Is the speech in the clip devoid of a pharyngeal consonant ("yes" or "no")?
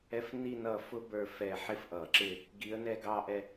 no